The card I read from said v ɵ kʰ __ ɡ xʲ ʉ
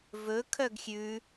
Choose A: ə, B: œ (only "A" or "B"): B